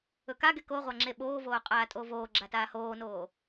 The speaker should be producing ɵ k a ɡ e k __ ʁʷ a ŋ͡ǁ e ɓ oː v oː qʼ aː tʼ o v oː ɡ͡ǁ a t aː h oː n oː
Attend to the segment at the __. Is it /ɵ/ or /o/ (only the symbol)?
o